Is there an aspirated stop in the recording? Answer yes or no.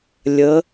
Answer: no